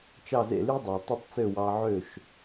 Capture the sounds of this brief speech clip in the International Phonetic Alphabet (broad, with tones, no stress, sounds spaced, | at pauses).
t͡ʃ ɑ˥˩ z ḛ˥˩ l y˥ dˤ ɑ˩ tˤ u˥˩ tˤ t͡s ø˥˩ w ɑ˧ ʕ ø˥˩ ʃ